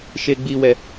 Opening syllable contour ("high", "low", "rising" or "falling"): low